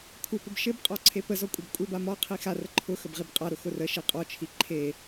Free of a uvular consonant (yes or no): no